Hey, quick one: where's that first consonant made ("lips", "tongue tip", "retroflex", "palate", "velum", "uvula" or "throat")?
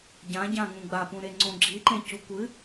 palate